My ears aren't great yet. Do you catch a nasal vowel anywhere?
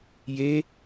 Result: no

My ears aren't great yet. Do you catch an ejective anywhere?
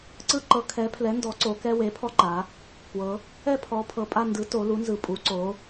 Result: yes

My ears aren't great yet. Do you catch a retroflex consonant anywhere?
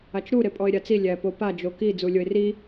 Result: no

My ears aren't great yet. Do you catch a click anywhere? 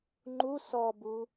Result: yes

